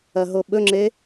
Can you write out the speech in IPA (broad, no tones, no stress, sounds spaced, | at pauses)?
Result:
ɐ ɦ o ɓ ɵ ŋ͡ǁ e